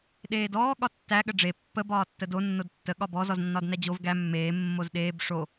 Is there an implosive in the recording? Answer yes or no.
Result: yes